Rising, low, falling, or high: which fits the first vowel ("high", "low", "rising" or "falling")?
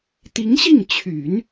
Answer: rising